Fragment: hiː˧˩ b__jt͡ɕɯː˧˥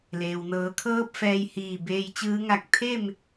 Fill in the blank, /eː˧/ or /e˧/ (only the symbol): eː˧